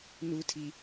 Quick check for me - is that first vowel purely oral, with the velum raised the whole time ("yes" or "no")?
yes